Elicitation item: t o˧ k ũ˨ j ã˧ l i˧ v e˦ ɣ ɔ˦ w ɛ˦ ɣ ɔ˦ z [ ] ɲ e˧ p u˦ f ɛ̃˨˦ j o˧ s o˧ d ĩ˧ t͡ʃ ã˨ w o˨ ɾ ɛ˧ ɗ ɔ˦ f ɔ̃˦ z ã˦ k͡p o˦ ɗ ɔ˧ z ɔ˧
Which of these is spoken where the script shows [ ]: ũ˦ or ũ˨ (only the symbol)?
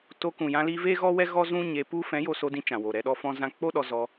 ũ˦